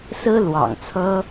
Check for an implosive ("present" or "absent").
absent